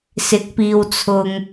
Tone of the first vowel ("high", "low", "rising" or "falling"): rising